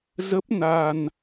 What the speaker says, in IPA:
z ə˦˥ p̚ n a˧ n

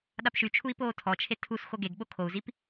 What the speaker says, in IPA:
ɗ a p ʃ y t͡ʃʰ u i̯ p oː tʰ ɔ t͡ʃʰ e tʰ u s x o ɡ e ɡ ɓ o kʰ o u̯ z i p

